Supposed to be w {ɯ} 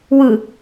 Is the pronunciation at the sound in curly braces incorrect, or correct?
correct